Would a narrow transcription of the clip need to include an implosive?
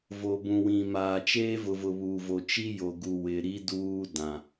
no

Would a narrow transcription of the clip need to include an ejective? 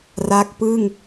no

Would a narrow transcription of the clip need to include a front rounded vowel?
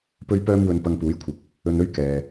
yes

